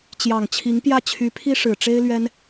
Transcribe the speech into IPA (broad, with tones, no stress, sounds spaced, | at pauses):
t͡ɕ j ɑ˨˩ ŋ t͡ɕʰ i˧˥ ŋ p j ä˥˩ t͡ɕʰ y˧˥ pʰ i˥ ʂ ɻ̩˨˩ ʈ͡ʂ e˥ ɪ̯ l ɥ ɛ˥ n